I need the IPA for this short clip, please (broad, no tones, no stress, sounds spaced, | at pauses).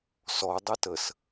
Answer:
s ɔ dˤ ɛ t ə s